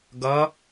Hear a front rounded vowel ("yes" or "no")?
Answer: no